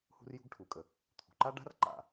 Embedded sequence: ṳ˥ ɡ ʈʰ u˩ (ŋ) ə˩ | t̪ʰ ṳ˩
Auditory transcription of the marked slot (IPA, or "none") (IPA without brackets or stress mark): kʼ